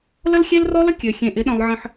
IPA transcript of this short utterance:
l ə˦ l xʲ e˦ l r ɔ˦ l ə˦ kʲ ø˨ xʲ ẽ˨ ʔ ɪ˨˦ ɗ œ̃˨ lˠ ʕ ə̃˨ ħ

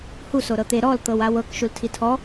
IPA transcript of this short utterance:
h u s o ɾ ɤ t̪ e ɾ ɔ l t̪ ɤ w a w ɤ k ʃ u l tʰ i tʰ ɔ

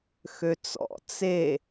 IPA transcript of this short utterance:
x ø t͡s ɔ̰ t͡s e

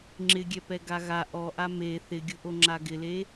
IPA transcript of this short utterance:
ŋ͡ǁ ɪ ɡʲ ɛ p ɛ ɡ a ɣ a ʔ ɔ ʔ a m e θ ɪ ɡʲ ʊ ʔ o ŋ͡ǁ a ɡ ɪ l e

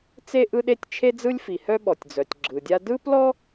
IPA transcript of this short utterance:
t͡s e˥ ʔ ɯ˥ ɗ e˥ tʲ t͡ʃʰ e˥ d͡z ɯ˥ lʲ f i˩ h œ˥ ɓ ɔ˩ tʲ d͡z œ˩ tʲ ɡ͡ǁ ɯ˩ dʲ a˥ d ɯ˥ p l ɔ˥

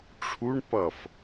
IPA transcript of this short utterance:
ʈ͡ʂʰ u ɳ p ʌ f

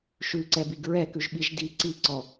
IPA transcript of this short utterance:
ʃ ʉ ǀ ɛ b i ɡ ɹ ɛ k ʉ ʒ ɓ i ʒ d i ǀ i ǀ ɔ

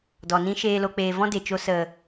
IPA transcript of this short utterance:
d ɔ˨ n ĩ˦ ʃ eː˧ l o˧ k͡p eː˧ v ɔ̃˦ d e˨ t͡ʃ o˧ s ə˨

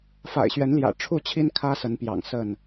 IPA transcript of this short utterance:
f a̰˨˩ ɪ̯ ɕ ɥ ɛ˨˦ n l j ä̰˨˩ ʈ͡ʂʰ u˥˨ t͡ɕʰ i˦ n kʰ ä˦ s ə˨˦ n p j ɑ̰˨˩ ŋ s ə˥˨ n

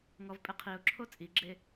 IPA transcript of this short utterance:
ŋ ɔ v pʼ ɪ qʰ i ʊ̯ ǁʰ o t͡sʼ i ɡ͡ǁ e

